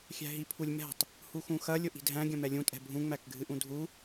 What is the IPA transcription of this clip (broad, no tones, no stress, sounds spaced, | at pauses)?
xʲ æ̤ ɦ i pʰ u lʲ m ɛ̤ tˤ | h u x ũ x ɐ lʲ ʊ ʔ i̤ dʱ æ̃ ɡʲ ɐ̃ m ɛ lʲ ũ tʼ ɛ̤ bʱ ũ ŋ͡m æ k ɡʱ ɨ ʔ ũ dʱ u